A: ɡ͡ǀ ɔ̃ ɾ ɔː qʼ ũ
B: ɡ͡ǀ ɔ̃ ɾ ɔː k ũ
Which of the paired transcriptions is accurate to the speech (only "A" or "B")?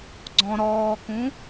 B